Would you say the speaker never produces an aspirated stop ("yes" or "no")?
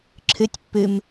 no